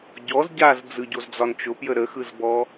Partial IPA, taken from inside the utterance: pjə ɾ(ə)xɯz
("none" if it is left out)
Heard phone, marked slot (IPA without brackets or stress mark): ə